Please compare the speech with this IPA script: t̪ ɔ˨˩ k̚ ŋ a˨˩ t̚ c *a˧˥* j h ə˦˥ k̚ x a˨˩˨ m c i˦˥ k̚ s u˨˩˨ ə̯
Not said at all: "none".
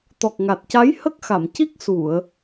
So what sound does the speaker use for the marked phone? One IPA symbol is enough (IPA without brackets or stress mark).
a˧˥